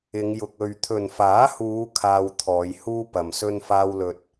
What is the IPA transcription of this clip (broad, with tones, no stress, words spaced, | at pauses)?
ɪ˨˧ŋjʊ˨k̚ ɵ˨ɥt̪ʰɵ˨nfaː˨˥huː˨˧ kʰaː˧wt̪ʰɔː˨˧jhuː˥ pɐ˨msɵ˥nfaː˥wlɵ˧t̚